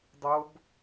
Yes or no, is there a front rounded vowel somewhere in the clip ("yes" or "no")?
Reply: no